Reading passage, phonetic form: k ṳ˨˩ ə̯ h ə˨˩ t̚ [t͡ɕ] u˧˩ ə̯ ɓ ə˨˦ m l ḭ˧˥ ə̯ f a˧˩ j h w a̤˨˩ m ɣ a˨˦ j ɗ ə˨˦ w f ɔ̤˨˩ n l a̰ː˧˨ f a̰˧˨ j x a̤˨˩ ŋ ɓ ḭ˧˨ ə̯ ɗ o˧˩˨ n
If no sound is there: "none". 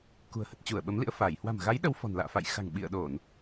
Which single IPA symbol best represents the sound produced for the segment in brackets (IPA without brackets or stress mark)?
t͡ɕ